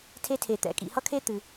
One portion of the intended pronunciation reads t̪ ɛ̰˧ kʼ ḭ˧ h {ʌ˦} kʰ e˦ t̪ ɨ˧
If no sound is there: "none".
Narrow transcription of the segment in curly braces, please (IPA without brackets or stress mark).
ʌ˦